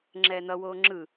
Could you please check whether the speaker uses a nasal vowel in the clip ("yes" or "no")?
no